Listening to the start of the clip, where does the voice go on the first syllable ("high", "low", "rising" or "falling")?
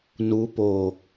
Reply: rising